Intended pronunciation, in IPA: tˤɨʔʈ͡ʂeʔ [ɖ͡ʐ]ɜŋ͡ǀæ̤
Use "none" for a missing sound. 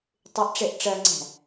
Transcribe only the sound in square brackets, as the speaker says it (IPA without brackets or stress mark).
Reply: ʈ͡ʂ